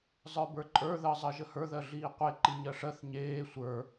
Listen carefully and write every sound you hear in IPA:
zˤ ə˞ b ə˞ ǃʼ ə˞ ð əː zˤ ɜ ʒ ə h ə˞ ð ɜ ɮ iː qʷ e ǃ i ɲ ɜ ʂ ɜ θ ɲ eː sʷ ə˞

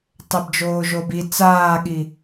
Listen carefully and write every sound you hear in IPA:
tˤ e b d͡ʒ oː ʒ o b i t͡s aː ɠ i

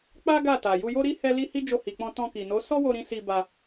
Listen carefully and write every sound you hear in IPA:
k͡p a˦ ɡ a˦˨ t a˨ j u˧ j o˦ ɾ i˦ h ɛ˦ l i˦ h i˦ d͡ʒ o˧ h i˨ k͡p ɔ̃˧ t ɔ̃˧ k i˨ n o˨˦ s ɔ˦ w o˧ ɾ ĩ˧ s i˧ b a˧

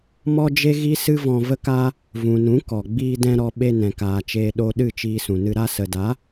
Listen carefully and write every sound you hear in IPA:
m ɔ˦ d͡ʒ e˦ ɣ i˦ s ɨ˦ v ɔ̃˧ v ə˦ k a˦ | v ũ˨ n ũ˨˦ k ɔ˨ ɡ͡b iː˧ d ɛ̃˧ ɾ ɔ˧ ɓ e˧ n ɛ̃˨ k aː˨ t͡ʃ eː˧ ɗ o˧ ɗ ɨ˦˨ t͡ʃ iː˧ s ũ˨ n ɨ˧ ɾ a˧ s ə˨ d a˨˦

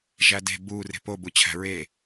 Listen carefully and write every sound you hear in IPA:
ʒ æ d e̤ b u r e̤ p o b u t͡ɕʰ æ̤ ɹ e

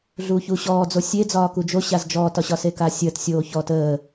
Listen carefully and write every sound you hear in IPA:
ɮ uː ç u ɕ ɔː d͡z o sʲ e d͡z ɒː k u d͡ʒ o ɕ a z d͡ʒ ɔː t ɒ ɕ ɒ s e k a sʲ əː t sʲ oː ç ɔ t əː

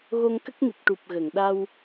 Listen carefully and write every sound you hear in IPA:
ɣ o˧ ŋ k ə˦˥ k̚ n i˨˩ t̚ ʈ u˨˩ p̚ ɣ ə˨˩˨ ŋ ɗ a˧ w

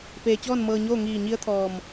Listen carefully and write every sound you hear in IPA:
p eː˩ t͡ɕ ɔː˥˨ n m ɤː˧ ɲ oː˥˨ ŋ iː˧˩ ɲ i˧˥ ə̯ t̪ʰ ɔː˧˩ m

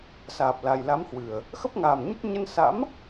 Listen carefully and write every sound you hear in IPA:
s aː˨˩ p̚ l a˨˩ j l a˨˦ m h w ɨ˨˩ ə̯ | x ə˦˥ p̚ ŋ aː˨˩ m ɲ ə˦˥ t̚ ɲ ə˧ n s a̰˧˥ m

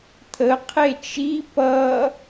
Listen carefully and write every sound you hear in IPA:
t̪ʰ ə qʰ e t͡ʃ i p ʌ

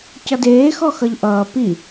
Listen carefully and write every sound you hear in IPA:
c ʌ d eː x ɔ x ʌ ʎ ʔ ʌː p i

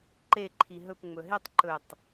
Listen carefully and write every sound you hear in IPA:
ǃ e ǃʰ i ɦ ɵ p ŋ͡m ɵ ɦ e tˤ ǃ ɵ tˤ

